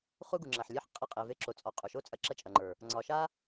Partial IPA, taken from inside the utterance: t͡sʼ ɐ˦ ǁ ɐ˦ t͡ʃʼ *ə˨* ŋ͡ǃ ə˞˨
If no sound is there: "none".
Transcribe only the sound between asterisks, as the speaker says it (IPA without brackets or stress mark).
ɐ˨